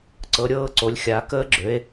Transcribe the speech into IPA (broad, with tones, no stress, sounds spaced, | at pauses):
ǀ ɤ˨˦ ɾʲ ɤː˥˧ ǀ o˨˦ lʲ xʲ a˨˦ k əː˦˥ ɡ͡ǁ ø˨˦ e̯